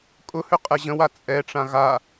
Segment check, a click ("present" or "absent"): absent